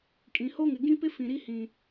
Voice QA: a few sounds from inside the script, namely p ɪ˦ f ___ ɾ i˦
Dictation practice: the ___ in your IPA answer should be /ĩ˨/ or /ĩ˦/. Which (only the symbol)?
ĩ˨